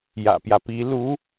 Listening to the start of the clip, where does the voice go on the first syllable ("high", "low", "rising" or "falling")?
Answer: low